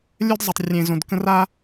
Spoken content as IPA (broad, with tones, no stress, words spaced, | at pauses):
lʲœ˦d zˤə˨tˤrʲẽ˨zõ˨dkə̃˦ ra˦